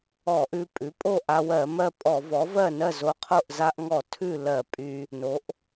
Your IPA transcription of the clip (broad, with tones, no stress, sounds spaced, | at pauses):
ɔ˧˩˧ ʔ ʉ˧ pʼ ʉ˩˥ pʼ o˥˨ ʔ a˧ w ɜ˧˩˧ m ɜ˥˨ pʼ ɔ˧˩˧ v ɔ˩˥ v ɜ˥˨ n ɜ˥˨ z o˧ qʰ o˥˨ ʔ z a˧ ʔ ŋ ɔ˧˩˧ tʰ ʉ˥˨ l ɜ˧˩˧ pʼ y˧ | n o˩˥ ʔ